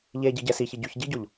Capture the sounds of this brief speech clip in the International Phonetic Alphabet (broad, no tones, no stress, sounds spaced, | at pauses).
ʎ e ɟ i ɟ ɛ s i ç i ɟ ʉ ç ɟ i ɟ o ʎ